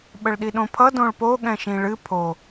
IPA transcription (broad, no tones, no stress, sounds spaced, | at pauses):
ɓ ə ɭ ɗ i ɗ õ pʰ ʌ d õ ɭ p o ɠ ɛ̃ ʃ ĩ ɭ ɨ pʰ o